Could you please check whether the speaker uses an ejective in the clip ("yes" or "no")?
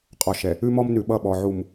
yes